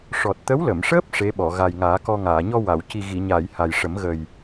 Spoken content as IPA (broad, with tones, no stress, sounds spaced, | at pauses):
ʂ ɔ˨˩ t̚ t̪ ə˧˥ w l ə˨˩˨ m ʂ əː˦˥ p̚ ʂ e˧˥ ɓ ɔ˨˩˨ ɣ a˨˩ j ŋ aː˨˩˦ k ɔ˧ ŋ aː˨˩˨ ɲ ɔ˧ w a˨˩˨ w c i˨˩ ɣ i˨˩˨ ɲ aː˨˩˨ j h a˨˩ j ʂ ə˨˩˦ m ɣ ə˨˩ j